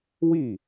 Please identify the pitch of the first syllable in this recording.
falling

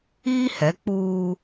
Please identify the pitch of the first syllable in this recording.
high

